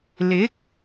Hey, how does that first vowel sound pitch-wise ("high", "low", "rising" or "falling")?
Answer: rising